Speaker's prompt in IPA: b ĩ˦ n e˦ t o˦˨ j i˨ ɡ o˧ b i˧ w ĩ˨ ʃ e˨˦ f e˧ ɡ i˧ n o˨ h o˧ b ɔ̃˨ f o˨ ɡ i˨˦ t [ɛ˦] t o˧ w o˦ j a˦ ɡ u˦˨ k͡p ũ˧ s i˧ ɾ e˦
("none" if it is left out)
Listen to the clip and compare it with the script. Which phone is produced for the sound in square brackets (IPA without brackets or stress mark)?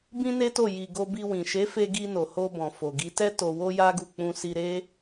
ɛ˦